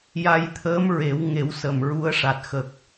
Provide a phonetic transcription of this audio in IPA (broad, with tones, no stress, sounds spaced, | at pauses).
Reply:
j a˧ j t̪ʰ əː˧˥ m ɹ e˨˩˦ w ŋ e˨˩˦ w s ə˨˩ m ɹ u˧˥ ə̯ ʂ a˨˩ t̚ x ə˨˩ k̚